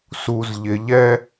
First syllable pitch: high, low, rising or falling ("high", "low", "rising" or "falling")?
low